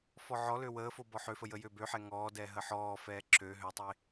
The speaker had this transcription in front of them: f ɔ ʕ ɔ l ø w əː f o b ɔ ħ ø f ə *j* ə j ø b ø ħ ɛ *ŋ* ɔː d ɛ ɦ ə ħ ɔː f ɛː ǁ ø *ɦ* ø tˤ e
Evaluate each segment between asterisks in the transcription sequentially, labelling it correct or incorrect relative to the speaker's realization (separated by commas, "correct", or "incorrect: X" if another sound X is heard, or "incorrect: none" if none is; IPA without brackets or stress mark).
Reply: correct, correct, correct